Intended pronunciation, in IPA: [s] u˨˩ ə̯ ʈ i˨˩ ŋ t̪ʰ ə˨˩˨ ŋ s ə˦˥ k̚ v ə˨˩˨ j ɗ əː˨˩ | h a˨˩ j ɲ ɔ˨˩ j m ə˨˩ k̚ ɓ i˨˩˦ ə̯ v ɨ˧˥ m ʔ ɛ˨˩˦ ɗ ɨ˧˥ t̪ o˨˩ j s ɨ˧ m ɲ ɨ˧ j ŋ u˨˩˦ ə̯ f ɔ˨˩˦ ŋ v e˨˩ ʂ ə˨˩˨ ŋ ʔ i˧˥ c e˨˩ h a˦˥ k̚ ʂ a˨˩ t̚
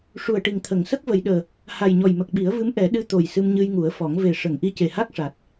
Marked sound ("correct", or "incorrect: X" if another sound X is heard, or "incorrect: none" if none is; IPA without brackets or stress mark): incorrect: ʂ